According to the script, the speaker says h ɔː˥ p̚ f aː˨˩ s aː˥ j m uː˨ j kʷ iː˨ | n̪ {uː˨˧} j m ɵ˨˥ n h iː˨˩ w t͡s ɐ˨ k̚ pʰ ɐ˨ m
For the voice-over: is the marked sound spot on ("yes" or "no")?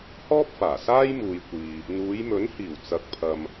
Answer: yes